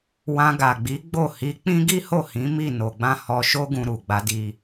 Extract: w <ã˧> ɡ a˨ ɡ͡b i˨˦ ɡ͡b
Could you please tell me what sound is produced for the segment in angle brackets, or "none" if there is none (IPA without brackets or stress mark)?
ã˧